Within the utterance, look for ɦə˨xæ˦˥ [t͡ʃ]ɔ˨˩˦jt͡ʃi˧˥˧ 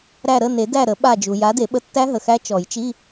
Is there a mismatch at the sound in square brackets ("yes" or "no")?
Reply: no